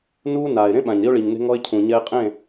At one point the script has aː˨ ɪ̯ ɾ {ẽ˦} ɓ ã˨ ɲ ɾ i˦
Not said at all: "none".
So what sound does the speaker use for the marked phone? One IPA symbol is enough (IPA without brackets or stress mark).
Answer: ẽ˦